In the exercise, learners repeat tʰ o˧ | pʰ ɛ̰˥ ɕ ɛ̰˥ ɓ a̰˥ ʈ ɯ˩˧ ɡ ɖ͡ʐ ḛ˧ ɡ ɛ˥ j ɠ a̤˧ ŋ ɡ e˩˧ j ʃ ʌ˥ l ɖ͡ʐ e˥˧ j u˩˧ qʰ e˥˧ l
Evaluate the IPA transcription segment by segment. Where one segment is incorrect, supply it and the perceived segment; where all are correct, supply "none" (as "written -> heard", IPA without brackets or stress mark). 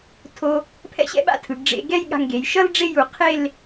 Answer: ʈ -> tʰ